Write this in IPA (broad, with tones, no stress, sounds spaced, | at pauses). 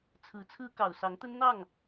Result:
t͡sʰ ɹ̩˧˥ t͡sʰ ɹ̩˥ k ɑ˨˩ ʊ̯ s ɑ˧˥ ŋ t̪ ə˥ n n̪ ɑ˥˩ ŋ